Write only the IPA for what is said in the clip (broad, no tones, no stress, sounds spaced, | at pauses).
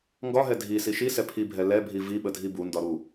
ŋ ɡ ɒ ɦ ɛ dʱ i s i ʃ i s ɛ pʰ i bʱ ɛ l ɛ bʱ i v i ɓ ə dʱ i b u n d ɒ ɾ u